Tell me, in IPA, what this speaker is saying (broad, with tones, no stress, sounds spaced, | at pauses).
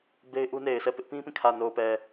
b e˦ ɪ̯ ʔ u˦ n e˨ ɪ̯ sʰ ɛ˦˨ p ɪ˦ ʔ p ĩ˦ p ĩ˦˨ kʰ ä˨ n o˨ ʊ̯ p ɛ˨